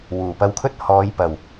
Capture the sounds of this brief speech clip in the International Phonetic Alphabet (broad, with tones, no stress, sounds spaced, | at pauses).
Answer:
w uː˨˩ p ɐ˧ w kʰ ɵ˥ t̚ h ɔː˨˧ j p ɐ˨˩ w